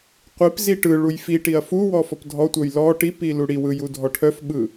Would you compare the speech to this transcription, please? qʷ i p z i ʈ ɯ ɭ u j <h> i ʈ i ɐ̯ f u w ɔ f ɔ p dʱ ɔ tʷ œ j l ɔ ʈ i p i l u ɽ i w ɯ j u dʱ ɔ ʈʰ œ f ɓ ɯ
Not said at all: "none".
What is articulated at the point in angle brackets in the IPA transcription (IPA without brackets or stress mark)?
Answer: f